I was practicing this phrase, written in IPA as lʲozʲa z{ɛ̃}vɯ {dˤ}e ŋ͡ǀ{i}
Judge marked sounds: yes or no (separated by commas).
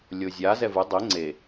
no, yes, no